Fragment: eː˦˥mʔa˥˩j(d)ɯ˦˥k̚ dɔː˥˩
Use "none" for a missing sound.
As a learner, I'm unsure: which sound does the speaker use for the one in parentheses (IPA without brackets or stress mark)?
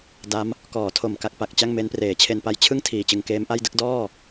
d